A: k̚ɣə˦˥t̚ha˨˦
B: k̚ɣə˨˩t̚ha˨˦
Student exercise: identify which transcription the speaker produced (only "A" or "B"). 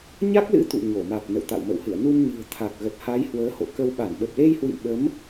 B